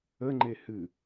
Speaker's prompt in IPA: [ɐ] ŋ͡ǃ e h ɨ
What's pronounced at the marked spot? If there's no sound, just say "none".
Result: ə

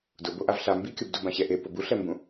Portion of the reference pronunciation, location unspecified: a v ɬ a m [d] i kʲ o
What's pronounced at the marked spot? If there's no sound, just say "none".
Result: b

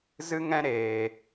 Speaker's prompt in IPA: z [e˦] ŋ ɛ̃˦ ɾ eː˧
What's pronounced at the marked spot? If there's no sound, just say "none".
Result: ɨ˦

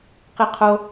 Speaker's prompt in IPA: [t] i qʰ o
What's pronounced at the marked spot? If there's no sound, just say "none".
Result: q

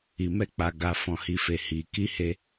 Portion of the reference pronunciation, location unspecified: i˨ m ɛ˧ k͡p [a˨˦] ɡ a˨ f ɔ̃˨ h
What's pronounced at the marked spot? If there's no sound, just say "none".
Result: a˨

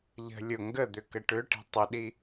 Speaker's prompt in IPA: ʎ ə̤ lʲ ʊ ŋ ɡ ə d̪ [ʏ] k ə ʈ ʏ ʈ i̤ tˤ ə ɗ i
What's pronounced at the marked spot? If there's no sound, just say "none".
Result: ʏ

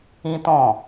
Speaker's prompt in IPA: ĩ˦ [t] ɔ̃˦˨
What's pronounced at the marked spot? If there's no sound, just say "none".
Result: t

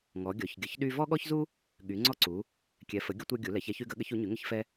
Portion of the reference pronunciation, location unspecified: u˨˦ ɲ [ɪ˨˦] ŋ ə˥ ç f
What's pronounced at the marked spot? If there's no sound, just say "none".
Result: y˨˦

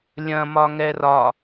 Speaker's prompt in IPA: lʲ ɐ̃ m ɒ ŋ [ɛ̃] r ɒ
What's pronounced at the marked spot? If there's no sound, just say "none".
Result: ɛ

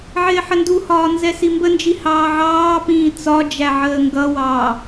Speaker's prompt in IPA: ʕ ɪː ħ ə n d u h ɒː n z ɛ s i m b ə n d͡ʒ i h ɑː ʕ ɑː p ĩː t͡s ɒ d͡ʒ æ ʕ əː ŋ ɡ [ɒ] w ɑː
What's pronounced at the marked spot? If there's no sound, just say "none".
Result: ʌ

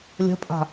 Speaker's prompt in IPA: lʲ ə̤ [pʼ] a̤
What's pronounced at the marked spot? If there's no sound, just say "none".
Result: pʼ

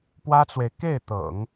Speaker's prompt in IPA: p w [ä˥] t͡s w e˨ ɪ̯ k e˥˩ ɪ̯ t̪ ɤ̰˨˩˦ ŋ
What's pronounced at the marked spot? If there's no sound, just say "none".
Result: ä˥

